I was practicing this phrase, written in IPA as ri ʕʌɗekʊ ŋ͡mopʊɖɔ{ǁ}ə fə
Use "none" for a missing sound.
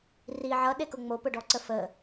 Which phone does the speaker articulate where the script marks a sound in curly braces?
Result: ǀ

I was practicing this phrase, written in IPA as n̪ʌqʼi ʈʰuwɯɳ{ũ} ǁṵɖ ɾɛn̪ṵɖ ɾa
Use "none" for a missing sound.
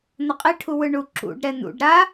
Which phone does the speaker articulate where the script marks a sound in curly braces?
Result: u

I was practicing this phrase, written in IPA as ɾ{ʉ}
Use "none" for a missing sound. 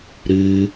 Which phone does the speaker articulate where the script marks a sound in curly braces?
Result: ʉ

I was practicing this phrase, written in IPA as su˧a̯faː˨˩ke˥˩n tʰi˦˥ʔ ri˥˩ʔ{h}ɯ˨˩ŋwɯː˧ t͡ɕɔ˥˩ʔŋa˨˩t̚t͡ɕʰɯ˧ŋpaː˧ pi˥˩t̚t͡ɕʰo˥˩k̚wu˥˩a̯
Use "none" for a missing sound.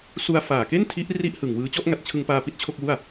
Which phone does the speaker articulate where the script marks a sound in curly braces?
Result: h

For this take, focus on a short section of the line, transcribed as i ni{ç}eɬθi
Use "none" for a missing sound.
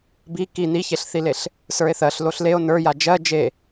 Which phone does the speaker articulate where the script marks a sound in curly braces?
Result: ç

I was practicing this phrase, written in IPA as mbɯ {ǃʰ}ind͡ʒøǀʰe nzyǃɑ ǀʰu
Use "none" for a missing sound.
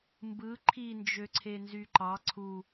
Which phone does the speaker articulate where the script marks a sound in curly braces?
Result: ǃʰ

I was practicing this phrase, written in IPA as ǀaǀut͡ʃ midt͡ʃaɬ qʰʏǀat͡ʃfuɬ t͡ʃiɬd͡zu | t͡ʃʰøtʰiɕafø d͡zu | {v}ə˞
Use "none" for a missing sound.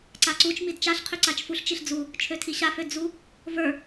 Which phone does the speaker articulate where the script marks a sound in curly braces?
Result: v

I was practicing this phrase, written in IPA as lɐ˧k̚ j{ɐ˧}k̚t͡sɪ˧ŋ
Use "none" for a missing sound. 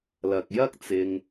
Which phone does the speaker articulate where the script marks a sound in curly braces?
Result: ɐ˥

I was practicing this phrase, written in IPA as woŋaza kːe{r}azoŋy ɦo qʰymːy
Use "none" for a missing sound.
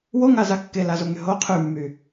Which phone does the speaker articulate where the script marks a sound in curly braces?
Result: l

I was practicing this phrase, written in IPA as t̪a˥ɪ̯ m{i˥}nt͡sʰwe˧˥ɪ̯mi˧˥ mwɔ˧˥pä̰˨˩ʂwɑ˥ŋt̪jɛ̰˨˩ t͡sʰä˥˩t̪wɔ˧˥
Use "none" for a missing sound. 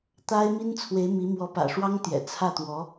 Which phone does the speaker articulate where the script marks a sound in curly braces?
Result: i˥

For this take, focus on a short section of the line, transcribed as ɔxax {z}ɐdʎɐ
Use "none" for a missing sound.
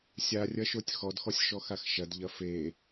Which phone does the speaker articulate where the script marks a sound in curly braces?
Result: ʃ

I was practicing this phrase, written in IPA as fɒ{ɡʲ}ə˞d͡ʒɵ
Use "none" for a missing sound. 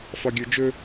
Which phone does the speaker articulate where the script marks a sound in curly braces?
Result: ɡʲ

